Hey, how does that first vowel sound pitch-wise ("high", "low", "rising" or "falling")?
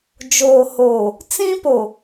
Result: low